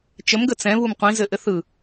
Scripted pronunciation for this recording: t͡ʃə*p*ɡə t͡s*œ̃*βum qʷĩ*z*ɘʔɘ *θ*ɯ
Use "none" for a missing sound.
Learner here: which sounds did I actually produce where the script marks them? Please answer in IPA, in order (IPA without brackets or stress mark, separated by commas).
m, ɛ̃, z, θ